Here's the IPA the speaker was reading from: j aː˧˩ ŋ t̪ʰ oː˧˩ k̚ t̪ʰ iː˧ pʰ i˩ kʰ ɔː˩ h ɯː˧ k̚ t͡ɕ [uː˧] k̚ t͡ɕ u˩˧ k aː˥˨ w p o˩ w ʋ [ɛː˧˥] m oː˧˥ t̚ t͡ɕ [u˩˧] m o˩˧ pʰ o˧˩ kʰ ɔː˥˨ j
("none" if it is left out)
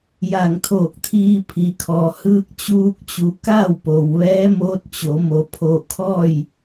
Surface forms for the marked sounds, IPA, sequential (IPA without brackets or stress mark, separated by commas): uː˧, ɛː˧˥, o˩˧